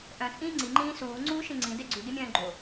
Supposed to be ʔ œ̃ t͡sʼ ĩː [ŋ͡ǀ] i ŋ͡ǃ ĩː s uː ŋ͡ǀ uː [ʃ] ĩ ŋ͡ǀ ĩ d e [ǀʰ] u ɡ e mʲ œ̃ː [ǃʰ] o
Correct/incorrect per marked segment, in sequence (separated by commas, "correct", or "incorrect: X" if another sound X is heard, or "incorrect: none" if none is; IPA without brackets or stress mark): correct, correct, incorrect: ɡ͡ǀ, incorrect: ɡ͡ǃ